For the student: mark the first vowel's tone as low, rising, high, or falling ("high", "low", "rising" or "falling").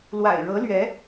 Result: low